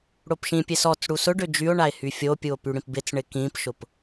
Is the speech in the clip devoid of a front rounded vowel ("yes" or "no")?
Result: no